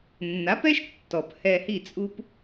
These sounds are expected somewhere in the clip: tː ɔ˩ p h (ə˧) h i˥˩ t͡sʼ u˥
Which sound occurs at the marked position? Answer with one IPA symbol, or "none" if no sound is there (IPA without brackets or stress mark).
ɛ˧